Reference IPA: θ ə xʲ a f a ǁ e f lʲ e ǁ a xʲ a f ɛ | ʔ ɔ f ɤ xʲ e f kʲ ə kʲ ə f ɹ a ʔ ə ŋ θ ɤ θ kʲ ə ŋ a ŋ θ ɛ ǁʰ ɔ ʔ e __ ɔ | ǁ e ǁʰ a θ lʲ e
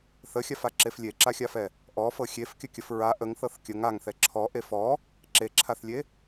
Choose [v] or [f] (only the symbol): f